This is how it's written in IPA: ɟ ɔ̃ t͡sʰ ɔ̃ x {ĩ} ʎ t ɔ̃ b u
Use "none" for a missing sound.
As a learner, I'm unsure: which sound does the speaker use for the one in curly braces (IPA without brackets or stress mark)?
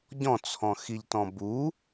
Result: i